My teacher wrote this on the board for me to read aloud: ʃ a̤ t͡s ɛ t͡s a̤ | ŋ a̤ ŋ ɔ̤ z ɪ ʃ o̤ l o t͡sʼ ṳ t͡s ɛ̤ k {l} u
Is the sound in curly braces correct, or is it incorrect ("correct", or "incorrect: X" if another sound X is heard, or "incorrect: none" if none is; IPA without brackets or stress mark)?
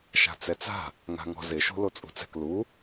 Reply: correct